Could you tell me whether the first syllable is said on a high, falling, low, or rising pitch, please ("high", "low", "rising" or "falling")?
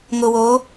low